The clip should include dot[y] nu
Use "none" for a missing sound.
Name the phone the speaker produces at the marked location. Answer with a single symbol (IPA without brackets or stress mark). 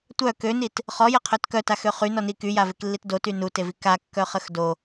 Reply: y